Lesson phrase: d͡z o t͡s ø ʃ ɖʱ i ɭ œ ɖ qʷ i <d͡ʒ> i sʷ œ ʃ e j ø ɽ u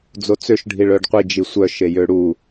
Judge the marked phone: correct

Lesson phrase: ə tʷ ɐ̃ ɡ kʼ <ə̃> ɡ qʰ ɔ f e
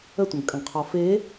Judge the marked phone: correct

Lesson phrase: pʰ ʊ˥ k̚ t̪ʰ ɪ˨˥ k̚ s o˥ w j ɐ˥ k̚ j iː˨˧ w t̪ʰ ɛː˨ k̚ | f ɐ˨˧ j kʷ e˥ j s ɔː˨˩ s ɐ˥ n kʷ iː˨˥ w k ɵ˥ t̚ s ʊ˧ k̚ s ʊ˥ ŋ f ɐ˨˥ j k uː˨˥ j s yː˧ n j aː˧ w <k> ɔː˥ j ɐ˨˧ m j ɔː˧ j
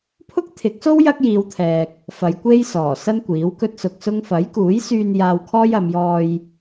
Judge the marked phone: incorrect: kʰ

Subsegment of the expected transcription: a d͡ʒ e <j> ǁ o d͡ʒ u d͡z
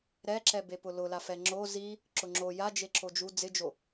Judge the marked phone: incorrect: none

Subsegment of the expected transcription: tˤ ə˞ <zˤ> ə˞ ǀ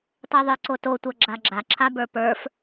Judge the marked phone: incorrect: ðˤ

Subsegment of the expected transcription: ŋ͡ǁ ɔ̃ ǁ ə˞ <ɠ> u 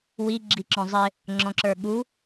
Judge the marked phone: correct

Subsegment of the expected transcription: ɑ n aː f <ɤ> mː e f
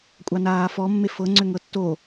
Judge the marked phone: incorrect: ɔ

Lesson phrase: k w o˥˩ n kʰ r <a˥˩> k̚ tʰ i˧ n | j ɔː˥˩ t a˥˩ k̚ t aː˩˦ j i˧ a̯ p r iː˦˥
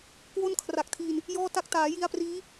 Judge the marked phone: incorrect: a˨˩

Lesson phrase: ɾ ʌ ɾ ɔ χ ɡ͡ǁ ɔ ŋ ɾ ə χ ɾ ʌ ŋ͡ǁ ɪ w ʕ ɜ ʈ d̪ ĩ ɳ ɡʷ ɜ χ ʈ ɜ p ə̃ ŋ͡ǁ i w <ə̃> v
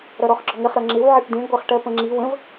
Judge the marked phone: correct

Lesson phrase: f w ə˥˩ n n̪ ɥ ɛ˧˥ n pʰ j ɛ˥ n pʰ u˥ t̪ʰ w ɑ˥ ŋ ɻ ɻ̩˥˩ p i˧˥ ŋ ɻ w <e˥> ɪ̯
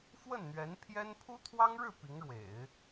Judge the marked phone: incorrect: ḛ˨˩˦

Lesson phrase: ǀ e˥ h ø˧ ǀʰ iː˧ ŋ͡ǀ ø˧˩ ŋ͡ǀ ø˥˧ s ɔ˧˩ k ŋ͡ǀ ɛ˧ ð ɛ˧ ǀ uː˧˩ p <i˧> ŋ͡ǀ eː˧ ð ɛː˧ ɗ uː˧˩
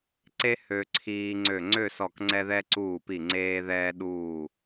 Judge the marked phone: incorrect: i˧˩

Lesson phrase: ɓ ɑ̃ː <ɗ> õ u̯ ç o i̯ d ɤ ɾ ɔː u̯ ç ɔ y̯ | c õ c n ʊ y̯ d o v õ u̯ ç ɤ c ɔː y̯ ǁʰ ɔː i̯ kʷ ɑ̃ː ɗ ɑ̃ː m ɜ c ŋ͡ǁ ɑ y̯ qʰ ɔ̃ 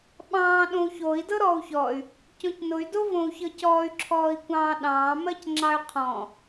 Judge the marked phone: correct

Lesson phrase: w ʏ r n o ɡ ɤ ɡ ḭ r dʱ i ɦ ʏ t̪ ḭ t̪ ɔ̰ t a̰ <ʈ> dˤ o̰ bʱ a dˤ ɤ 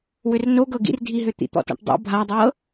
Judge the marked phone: correct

